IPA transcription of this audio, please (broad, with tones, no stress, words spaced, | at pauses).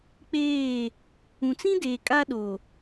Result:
k͡peː˦˨ | ũ˨t͡sĩ˦deː˨ kʼa˦ɗo˨